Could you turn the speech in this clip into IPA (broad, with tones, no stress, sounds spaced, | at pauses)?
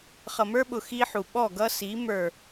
χ ʌ˨ m ə˞˦ ɓ ʊ˨ x i˦ ħ u˨ ɓ ɔ˦˨ ɡ ʌ˦ s i˨˦ m ə˞˨